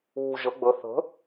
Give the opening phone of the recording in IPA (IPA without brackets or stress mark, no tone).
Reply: uː